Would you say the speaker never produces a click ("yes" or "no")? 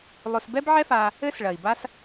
yes